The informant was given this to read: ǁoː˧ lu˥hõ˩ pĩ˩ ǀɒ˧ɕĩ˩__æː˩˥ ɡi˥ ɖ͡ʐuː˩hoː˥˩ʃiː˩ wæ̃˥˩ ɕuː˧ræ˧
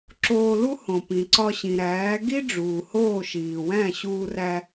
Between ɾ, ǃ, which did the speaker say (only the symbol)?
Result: ɾ